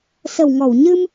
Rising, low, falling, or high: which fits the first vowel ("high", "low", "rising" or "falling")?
low